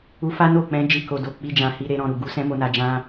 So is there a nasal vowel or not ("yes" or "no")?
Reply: yes